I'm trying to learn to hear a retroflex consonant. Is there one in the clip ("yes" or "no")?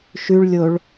yes